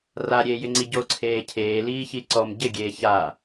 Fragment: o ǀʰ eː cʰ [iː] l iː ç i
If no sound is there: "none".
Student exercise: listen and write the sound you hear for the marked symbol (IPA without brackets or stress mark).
eː